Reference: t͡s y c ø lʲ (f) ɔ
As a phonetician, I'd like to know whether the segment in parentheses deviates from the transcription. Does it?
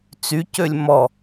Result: yes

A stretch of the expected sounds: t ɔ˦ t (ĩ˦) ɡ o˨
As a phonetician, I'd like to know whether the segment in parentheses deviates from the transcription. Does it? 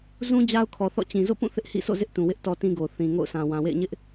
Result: no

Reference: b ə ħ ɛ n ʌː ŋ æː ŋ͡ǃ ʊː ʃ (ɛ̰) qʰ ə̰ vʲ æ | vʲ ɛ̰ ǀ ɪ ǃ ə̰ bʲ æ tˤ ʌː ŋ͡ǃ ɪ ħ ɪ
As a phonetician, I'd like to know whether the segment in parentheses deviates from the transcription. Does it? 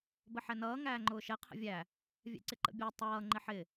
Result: yes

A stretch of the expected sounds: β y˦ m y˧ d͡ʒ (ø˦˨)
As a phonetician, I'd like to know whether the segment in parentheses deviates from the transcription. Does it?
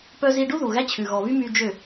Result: no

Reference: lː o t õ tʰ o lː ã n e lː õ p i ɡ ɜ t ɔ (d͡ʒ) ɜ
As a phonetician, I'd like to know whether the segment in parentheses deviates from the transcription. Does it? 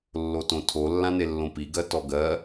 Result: yes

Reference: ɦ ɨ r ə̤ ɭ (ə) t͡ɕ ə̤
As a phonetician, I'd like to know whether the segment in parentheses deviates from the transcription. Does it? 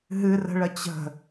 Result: no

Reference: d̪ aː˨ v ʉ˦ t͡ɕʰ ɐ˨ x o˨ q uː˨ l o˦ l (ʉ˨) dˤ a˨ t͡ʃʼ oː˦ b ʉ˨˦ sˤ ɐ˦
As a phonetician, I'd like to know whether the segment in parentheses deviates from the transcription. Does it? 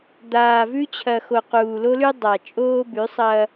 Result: yes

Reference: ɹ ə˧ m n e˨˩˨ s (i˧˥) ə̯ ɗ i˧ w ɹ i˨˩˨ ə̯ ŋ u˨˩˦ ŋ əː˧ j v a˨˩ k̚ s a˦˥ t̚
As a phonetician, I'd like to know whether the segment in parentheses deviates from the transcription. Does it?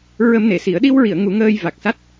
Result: yes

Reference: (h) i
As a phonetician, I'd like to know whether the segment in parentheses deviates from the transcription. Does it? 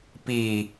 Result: yes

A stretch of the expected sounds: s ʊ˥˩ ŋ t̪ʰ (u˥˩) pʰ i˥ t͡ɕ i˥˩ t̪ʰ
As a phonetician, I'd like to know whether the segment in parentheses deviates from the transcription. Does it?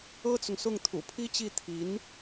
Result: yes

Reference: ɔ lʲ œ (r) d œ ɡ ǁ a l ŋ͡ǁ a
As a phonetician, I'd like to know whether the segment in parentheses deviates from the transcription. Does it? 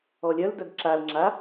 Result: yes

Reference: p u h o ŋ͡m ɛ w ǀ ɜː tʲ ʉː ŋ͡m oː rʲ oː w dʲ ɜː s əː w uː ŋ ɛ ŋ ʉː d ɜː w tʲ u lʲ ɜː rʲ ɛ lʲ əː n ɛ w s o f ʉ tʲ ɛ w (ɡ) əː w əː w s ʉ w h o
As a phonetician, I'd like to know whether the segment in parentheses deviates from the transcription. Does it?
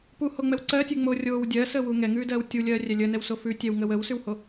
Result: yes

